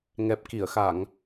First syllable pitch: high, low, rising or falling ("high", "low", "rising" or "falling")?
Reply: low